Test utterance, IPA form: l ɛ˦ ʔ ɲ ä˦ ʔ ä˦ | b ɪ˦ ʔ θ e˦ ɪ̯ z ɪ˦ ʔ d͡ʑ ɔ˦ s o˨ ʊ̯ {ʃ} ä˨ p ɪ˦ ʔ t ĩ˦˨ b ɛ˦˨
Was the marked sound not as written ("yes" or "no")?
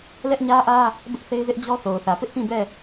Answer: yes